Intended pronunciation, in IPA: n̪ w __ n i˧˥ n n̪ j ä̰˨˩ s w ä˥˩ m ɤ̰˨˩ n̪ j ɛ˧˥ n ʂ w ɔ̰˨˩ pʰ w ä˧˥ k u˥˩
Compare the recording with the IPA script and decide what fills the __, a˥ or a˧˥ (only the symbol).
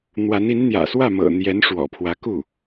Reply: a˧˥